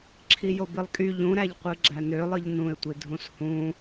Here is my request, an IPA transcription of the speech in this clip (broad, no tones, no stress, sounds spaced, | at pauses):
ǁʰ i j o b i lˠ kʼ y ʎ ũ ɾ æ ʎ qʷ ɯ ɡ͡ǁ æ n ø lˠ ɯ ʎ n ũ ɪ̯ tʷ i dʱ ũ s h ũ